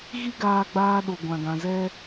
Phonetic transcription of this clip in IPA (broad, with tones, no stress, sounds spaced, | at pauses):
ɣ i˦ ɡ aː˧ ɡ͡b aː˧ ɗ o˨ ɡʷ ã˨ ɡ ã˨ z ɛ˦